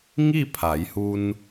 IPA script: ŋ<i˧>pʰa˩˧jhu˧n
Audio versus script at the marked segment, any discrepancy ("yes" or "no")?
yes